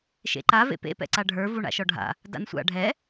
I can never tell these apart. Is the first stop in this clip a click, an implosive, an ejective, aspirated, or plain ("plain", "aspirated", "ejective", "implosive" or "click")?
click